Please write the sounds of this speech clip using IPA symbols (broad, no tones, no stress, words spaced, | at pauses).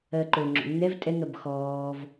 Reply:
ɜǃo ŋ͡ǁo̰nːɛv tʼɛŋɜb xɔːv